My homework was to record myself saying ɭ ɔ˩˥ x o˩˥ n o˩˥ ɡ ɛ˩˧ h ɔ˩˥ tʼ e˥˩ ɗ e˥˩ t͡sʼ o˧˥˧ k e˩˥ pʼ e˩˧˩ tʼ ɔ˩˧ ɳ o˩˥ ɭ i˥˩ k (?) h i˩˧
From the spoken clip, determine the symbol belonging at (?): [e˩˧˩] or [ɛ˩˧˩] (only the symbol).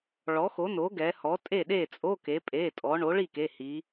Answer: e˩˧˩